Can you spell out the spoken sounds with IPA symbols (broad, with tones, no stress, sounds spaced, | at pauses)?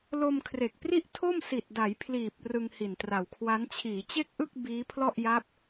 l o˧ m kʰ r e˨˩ k̚ p r i˥˩ ʔ tʰ o˥˩ m s i˨˩ t̚ d a˩˦ j pʰ l iː˨˩ p̚ r ɯ˧ ŋ h i˨˩ n t r a˨˩ w kʰ w a˦˥ n t͡ɕʰ iː˩˦ t͡ɕ e˥˩ k̚ ʔ ɯ˥˩ k̚ b iː˦˥ pʰ l ɔ˥˩ ʔ j a˦˥ p̚